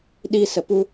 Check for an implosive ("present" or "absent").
present